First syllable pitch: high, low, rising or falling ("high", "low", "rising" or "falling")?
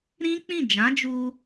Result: high